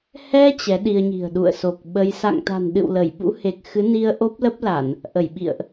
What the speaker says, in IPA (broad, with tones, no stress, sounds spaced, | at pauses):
h ɛ˧ t͡ɕ ɛ˨˦ ɗ i˧ ə̯ ɲ i̤˨˩ ə̯ ɗ ṵ˧˨ ə̯ s o˨˩ k̚ ɓ ə˧ j s a̰˧˨ ŋ t̪ a̤˨˩ n ɗ ɨ̰˧˨ w l ə˧˩ j ɓ ṵ˧˥ h e˨˩ k̚ x ɨ˨˦ n i˧ ə̯ ʔ o˦˥ p̚ l ə˦˥ p̚ l a˧˩˨ n | ʔ ə˧˩ j ɓ ḭ˧˨ ə̯ ʔ